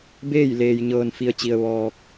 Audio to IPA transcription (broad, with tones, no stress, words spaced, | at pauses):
beː˥˨j leː˧jɲɤː˧nfi˧ə̯t͡ɕi˧ə̯ ʋɔː˧k̚